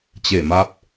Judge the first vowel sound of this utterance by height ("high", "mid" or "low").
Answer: mid